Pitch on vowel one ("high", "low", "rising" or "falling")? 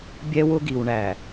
high